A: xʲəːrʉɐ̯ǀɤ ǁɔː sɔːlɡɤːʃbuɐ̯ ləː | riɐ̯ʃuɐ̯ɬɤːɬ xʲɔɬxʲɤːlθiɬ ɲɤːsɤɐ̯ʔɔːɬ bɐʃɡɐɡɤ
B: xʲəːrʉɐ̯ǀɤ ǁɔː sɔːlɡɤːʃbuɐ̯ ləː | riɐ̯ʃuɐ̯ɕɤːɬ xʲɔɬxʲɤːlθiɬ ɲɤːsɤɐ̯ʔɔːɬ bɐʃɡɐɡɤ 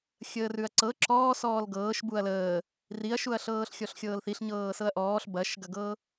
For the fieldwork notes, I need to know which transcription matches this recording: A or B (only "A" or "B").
A